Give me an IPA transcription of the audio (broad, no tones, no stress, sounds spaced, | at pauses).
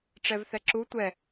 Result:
ʈ͡ʂ ɛ v θ ɛ ǁ u tʷ ɛ